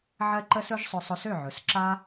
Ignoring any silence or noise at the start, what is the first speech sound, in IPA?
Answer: ʕ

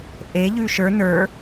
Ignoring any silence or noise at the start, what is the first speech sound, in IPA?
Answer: ʔ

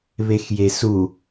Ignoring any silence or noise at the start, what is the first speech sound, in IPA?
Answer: β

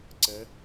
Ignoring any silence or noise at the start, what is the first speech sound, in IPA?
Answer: ǀ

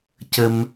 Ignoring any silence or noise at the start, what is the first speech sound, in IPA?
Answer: c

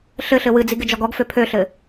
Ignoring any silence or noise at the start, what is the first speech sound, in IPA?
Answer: ɬ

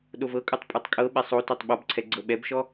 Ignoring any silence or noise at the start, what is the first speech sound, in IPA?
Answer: ɗ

